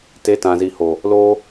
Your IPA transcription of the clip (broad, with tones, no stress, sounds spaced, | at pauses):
t e˨˦ t ã˨ z i˨ h o˨ | l o˧